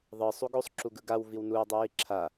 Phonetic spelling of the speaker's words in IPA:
ðˤɯ sˤuɡosˤ ǁuɡɯɡaw viwnuo̯ dˤijiǁʰa

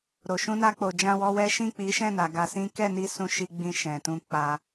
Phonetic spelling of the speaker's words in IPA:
ɾo˨ ʃũ˧na˧k͡po˨ d͡ʒã˧wɔ˧wɛ˦ ʃĩ˦˨k͡pi˨˦ʃɛ̃˦˨na˨ ɡa˧sĩ˦ kɛ˦˨ni˧ sũ˦ʃi˦ɡ͡bĩ˦˨ ʃɛ̃˨ tũ˧k͡pa˧

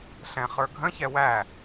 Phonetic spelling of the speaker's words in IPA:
ɬɛ̃χə˞ɡʱə̃çɛ wæ

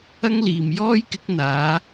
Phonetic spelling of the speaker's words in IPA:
ɐ˥ŋliː˨m jɔː˥jkɪ˨˥k̚n̪aː˨˧

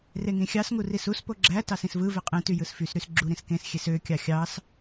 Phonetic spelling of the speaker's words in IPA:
reŋĩxʲɑsŋu risuspo ɡ͡ǁæ tɑsĩsvɯve qʼẽty jɯsfysɾys ɡ͡ǁu ɾĩskẽsxʲes økʲɑ xʲɑs

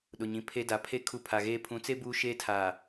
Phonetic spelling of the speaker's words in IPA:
ɗʊ˨ɲĩ˨ pʰe˦da˨ pʰe˦ kʰu˦ pʰa˨ɣeː˦ pʰũ˨˦t͡se˦ buː˦ʃeː˦tʰaː˨

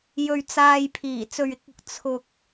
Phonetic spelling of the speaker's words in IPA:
jɵ˧ɥt͡saː˧j pʰiː˨˩t͡sɵ˨ɥɪ˨˥k̚ ʊ˧k̚ t͡sʰʊ˨k̚

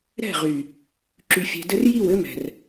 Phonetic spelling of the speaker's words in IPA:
ɾɛ̤˦˨ʁy˨ | ǁy˨fʲɛ̤˨dɘ˦r ji˦˨w ɘ˦mɛ̤˨r

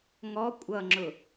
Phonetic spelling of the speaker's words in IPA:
ŋɔ kʷʼʌŋ͡ǁʊ

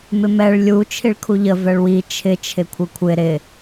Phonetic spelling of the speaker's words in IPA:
mɪmɛɭ lʲu t͡ʃʰiɭkʰuʎə vɛɭwi t͡ʃʰɪ t͡ʃʰɪkʷʰɪkʷʰɪ ɾɪ

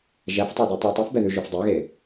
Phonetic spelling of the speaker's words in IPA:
ʒæftˤœde tˤu tˤifbɛðʉ ʒʉfdˤeɣe

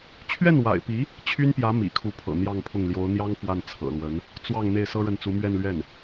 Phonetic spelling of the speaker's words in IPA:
t͡ɕʰɥɛ˥˩nwa̰˨˩ɪ̯pi˧˥ | t͡ɕʰy˥npjä˧˥ mḭ˨˩kʰu˧˥pʰɤ̰˨˩ n̪jɑ˥˧ŋpʰʊ˥˩ŋ ljo˧˥ʊ̯n̪jɑ˥ŋ fwa˥˩nt͡sʰɤ̰˨˩lwə˧˥n | t͡swɑ˥˧ŋ n̪e˥˩ɪ̯sɤ˥ɻə˥˩nt͡su˧˥ mɥɛ˥˧nlɥɛ˥˩n

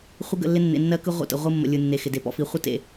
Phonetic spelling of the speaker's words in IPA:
χʷɪ˦ɡə̰˦˨lːɪ˦ nːḛ˨nːɜ˦kɯ˦ ʁʷə̰˦˨tə̰˨ʁʷɯ˦mːə̰˨ lʲɯ˨nːe˨ xɪ˨de˨pɔ̰˦fi˨˦ χʷə˦tḛ˨

